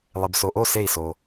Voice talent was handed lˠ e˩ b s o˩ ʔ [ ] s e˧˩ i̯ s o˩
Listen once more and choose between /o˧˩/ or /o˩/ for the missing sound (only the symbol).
o˧˩